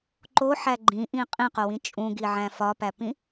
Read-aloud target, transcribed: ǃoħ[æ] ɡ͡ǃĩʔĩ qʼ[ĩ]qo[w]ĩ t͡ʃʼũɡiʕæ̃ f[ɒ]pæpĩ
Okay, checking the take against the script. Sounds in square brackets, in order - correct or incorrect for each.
correct, correct, correct, correct

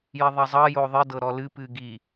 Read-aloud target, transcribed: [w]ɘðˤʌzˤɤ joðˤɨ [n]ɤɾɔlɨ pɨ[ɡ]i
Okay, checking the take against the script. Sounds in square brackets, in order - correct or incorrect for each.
incorrect, incorrect, correct

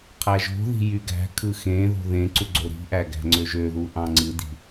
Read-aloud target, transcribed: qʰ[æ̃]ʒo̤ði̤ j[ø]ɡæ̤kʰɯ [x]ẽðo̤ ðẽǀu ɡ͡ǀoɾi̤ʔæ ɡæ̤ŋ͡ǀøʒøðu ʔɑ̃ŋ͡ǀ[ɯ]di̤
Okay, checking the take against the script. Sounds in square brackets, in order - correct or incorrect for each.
incorrect, incorrect, correct, correct

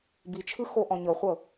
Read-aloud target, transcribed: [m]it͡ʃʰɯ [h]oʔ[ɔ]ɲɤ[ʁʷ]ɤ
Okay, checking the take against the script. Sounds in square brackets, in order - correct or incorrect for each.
incorrect, incorrect, incorrect, incorrect

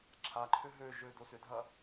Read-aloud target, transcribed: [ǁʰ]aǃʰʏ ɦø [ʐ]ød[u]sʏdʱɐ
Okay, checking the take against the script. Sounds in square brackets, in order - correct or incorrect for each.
correct, incorrect, incorrect

